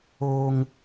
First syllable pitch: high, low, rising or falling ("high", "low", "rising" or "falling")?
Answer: high